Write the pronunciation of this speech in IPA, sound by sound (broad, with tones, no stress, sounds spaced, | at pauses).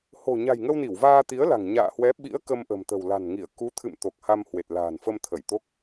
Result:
h o̤˨˩ ɲ a̤˨˩ j ŋ ə˧ w n i˧˩ w v aː˧ t̪ i˨˦ ə̯ l a̤˨˩ ŋ ɲ a̰ː˧˨ h w ɛ˨˦ ɓ ḭ˧˥ ə̯ k ə˧ m ʔ ə̤˨˩ m t̪ ə̤˨˩ w l a̤˨˩ n ŋ i˧˩ ə̯ k u˨˦ t̪ʰ ɨ̰˧˨ m t̪ o˨˩ k̚ h a˧ m h w e˨˩ t̚ l a̤ː˨˩ n f ə˧ m t̪ʰ ə˧˩ j t̪ o˦˥ k̚